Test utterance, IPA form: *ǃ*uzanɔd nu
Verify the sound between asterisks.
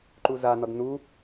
correct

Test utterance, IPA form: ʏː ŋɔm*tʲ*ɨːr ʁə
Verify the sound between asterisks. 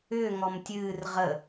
correct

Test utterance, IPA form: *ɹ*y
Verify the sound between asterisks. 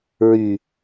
correct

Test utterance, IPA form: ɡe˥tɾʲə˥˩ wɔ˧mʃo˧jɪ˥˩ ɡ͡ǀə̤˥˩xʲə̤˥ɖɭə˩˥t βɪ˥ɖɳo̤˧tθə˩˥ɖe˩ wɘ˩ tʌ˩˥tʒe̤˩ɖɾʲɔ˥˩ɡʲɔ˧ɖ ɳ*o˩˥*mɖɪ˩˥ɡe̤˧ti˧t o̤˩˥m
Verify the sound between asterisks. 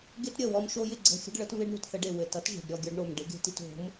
incorrect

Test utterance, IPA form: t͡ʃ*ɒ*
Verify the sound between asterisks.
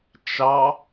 incorrect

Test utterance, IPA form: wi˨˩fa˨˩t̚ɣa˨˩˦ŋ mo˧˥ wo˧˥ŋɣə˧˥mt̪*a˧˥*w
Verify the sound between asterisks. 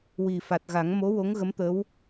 incorrect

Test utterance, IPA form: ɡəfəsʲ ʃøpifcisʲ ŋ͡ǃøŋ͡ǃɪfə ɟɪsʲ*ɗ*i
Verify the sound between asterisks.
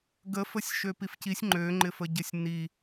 incorrect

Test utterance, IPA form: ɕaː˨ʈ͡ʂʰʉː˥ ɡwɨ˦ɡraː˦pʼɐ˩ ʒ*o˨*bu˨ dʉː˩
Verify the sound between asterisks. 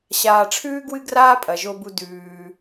correct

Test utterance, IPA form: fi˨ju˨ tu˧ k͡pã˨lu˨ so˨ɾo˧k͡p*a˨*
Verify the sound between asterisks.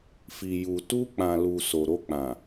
incorrect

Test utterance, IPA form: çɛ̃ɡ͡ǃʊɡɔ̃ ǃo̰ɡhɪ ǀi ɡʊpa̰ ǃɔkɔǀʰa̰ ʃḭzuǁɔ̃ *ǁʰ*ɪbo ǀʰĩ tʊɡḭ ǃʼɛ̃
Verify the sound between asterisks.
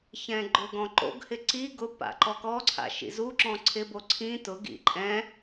incorrect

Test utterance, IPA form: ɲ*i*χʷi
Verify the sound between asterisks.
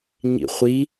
incorrect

